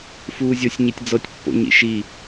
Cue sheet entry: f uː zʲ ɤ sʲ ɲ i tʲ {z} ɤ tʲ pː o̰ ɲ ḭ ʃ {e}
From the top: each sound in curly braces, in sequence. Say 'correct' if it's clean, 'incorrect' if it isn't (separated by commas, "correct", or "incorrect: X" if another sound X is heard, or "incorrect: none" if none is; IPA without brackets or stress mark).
incorrect: d͡z, incorrect: i